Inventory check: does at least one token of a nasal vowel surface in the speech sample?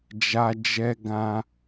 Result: yes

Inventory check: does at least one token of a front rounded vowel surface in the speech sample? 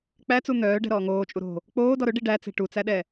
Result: yes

